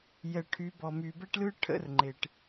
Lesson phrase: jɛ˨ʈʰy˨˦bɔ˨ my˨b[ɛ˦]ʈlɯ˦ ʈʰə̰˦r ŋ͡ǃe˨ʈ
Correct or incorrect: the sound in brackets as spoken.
correct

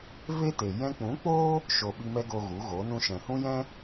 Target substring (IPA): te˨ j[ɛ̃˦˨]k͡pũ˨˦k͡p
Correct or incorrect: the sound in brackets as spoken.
incorrect: ɛ̃˧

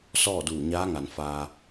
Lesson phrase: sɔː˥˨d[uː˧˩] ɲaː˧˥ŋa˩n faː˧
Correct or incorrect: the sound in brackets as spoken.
correct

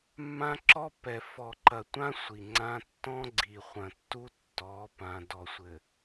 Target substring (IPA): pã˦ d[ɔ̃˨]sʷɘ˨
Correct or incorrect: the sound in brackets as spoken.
incorrect: ɔ˨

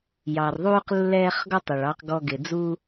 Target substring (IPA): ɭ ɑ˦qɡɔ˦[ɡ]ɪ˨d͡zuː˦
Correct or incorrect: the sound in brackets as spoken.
correct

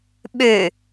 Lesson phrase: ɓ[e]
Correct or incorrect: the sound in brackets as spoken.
incorrect: ø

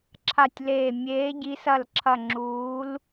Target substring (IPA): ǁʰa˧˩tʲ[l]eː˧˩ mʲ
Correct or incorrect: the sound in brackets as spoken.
correct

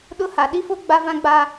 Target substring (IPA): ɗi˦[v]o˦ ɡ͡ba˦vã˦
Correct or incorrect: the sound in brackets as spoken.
incorrect: f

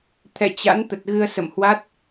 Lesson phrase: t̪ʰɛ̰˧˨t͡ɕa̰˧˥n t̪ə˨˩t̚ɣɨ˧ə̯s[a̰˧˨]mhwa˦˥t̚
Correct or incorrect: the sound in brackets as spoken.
incorrect: ə̰˧˨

